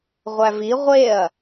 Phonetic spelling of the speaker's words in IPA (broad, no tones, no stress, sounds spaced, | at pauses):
ʁʷ æ v i ʁʷ e ɐ̯